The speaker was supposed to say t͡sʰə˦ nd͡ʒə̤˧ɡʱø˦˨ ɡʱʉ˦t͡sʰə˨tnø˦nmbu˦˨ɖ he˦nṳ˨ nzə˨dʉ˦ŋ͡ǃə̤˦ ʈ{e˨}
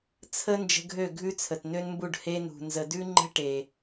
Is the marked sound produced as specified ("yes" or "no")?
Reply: yes